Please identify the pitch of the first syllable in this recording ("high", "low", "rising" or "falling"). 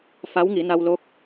rising